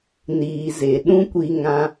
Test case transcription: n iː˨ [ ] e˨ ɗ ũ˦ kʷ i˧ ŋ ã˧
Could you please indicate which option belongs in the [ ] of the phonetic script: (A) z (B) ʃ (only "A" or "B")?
A